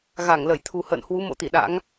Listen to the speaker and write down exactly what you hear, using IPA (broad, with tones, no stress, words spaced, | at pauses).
ɣa˧˩ŋlə˧˩jt̪ʰu˨˩ hə̰ː˧˨nhwu˨˦ mo̰˧˥t̪i˧˩ɗa̰˧˥ŋ